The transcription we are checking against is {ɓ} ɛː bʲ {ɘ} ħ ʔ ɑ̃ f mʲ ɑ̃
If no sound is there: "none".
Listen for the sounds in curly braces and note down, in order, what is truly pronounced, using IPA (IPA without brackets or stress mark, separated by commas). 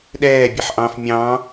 ɗ, ɛ